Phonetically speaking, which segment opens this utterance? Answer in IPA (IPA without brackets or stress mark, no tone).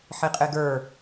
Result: ħ